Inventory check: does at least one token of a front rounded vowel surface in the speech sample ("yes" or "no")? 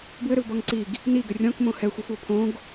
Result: yes